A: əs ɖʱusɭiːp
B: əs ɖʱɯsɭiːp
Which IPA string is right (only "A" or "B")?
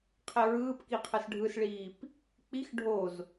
B